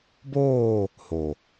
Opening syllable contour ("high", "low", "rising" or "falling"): falling